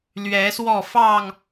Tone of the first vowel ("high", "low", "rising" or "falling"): rising